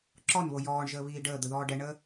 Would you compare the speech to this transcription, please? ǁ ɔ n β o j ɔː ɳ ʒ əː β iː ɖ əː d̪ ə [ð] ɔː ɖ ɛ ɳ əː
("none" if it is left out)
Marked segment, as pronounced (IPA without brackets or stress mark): ð